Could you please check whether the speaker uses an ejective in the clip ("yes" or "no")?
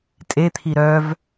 yes